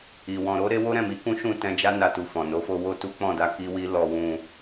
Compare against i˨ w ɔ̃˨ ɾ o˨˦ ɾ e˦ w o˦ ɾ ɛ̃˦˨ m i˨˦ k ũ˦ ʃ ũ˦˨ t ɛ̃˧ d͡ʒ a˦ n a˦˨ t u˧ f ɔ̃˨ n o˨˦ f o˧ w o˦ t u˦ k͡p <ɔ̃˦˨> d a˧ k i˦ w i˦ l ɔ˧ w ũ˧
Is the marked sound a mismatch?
no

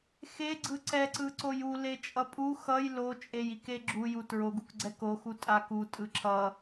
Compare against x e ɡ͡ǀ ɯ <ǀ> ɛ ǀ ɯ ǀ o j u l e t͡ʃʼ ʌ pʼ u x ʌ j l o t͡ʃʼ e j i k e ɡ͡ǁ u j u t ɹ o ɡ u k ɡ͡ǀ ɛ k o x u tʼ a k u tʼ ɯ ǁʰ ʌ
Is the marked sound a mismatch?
no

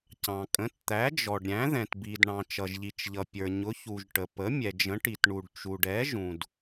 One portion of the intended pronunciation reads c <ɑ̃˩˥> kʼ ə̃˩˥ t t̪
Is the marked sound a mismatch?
yes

